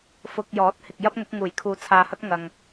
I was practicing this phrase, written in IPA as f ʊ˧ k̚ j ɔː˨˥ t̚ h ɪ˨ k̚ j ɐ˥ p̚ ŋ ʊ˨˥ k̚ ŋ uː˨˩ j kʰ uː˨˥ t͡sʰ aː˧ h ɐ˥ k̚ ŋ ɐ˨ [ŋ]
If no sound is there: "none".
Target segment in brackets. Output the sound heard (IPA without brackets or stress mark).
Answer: ŋ